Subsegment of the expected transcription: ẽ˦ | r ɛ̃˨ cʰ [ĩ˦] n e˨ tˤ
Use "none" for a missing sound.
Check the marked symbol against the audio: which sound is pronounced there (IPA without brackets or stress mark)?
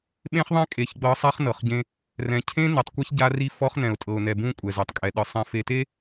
ẽ˦